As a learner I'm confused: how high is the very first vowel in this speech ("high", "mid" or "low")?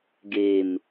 mid